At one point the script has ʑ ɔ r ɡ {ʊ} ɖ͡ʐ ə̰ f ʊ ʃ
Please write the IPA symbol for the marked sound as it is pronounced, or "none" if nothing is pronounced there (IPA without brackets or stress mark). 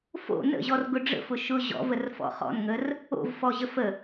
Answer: ʊ